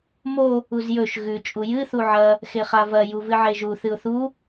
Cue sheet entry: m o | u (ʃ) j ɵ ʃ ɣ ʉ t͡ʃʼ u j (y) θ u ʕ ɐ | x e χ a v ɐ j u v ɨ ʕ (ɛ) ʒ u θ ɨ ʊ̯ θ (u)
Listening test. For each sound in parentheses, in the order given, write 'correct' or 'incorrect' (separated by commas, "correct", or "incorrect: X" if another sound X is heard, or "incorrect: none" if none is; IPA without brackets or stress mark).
incorrect: z, incorrect: ɨ, incorrect: e, correct